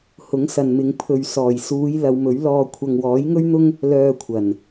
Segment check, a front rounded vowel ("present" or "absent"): present